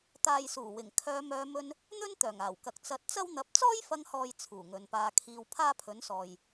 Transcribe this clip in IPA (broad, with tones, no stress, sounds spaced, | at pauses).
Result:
t̪ aː˨ j s uː˨˩ w ɪ˨˩ ŋ kʰ œː˨˧ m œː˨˧ m ɵ˧ n | n̪ ɵ˥ n t̪ œː˨˩ ŋ aː˨˩ w k ɐ˨ k̚ t͡s ɐ˨˥ t̚ t͡s ɐ˥ w n̪ ɐ˧ p̚ t͡s ɔː˥ j f ɐ˧ ŋ h ɔː˨ j t͡sʰ uː˨˩ ŋ ɵ˨˧ n p aː˧ kʰ iː˧ w pʰ aː˥ pʰ ɵ˨˥ n s ɔː˨ j